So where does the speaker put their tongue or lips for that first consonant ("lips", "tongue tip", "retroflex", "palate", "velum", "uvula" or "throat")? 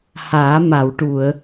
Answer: throat